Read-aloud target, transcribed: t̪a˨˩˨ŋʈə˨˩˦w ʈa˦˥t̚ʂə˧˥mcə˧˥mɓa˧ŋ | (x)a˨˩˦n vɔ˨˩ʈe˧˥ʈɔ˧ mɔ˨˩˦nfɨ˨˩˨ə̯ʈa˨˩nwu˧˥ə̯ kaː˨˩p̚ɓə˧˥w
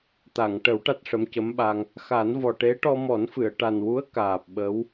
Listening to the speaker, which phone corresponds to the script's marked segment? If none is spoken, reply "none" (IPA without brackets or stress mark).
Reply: x